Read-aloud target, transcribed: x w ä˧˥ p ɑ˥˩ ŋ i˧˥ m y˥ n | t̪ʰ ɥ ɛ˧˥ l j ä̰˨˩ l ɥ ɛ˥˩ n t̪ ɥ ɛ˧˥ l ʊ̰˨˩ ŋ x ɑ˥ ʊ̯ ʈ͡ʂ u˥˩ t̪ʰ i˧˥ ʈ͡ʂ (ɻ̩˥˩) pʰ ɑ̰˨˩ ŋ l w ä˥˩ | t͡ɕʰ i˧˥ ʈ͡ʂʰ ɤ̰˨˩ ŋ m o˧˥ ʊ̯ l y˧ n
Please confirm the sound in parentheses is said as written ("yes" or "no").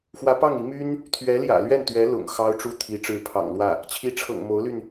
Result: no